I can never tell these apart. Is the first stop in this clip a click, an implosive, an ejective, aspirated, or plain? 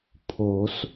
aspirated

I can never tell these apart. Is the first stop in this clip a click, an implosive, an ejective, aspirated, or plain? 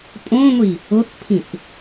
ejective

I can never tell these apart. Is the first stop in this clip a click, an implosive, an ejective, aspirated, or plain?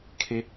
aspirated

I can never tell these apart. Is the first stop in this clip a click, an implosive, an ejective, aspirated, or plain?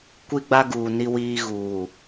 plain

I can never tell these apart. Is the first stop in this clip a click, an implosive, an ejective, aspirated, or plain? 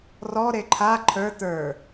click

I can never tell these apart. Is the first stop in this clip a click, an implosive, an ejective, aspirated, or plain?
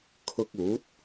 aspirated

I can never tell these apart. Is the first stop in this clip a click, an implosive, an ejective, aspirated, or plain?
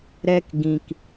plain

